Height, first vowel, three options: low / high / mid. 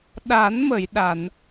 low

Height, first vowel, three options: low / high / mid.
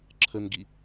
mid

